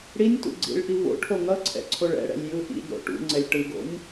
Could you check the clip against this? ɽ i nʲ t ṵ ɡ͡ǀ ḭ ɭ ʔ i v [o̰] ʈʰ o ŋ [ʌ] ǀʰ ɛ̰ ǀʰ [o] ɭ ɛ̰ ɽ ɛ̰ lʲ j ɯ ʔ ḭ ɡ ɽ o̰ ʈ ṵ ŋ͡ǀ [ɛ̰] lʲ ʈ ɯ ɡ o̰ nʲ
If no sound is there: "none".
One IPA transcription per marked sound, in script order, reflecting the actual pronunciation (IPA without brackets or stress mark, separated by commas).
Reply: o̰, ʌ, o, ɛ